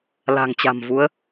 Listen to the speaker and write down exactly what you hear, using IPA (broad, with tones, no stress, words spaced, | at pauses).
la̤˨˩ŋt͡ɕa̤˨˩mvu˨˦ə̯